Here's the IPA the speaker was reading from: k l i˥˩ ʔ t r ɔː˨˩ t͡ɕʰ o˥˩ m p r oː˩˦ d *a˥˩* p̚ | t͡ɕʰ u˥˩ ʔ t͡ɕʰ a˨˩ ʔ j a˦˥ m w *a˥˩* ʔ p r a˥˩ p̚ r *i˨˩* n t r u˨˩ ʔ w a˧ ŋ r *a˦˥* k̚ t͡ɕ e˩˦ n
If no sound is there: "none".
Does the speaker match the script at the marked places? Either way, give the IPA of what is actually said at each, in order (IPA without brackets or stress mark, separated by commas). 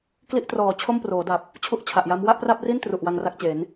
a˨˩, a˥˩, i˥˩, a˥˩